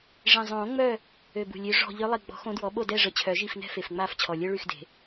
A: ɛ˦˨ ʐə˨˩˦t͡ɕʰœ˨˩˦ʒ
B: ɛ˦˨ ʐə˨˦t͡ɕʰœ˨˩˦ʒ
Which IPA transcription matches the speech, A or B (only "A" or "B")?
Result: B